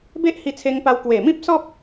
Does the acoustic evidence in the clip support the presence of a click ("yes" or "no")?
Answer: no